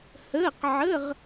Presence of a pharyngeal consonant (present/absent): present